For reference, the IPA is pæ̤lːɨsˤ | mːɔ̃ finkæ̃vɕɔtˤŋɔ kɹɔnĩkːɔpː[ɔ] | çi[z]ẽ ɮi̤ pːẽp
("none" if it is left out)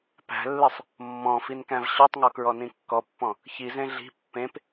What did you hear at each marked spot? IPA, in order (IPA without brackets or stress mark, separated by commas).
ɔ̃, z